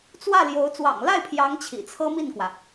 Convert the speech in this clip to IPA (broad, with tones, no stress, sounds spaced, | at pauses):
t͡s w ä˥˩ l j o˧˥ ʊ̯ t͡s w ɑ̰˨˩ ŋ l a˥˩ ɪ̯ pʰ j ɑ˧˥ ŋ t͡ɕʰ ḭ˨˩ t͡sʰ ɤ˥ m i˥˩ n k w ä˩